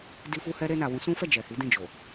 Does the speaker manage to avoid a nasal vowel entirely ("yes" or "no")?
no